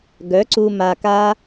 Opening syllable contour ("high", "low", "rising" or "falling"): rising